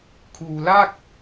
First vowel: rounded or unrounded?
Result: rounded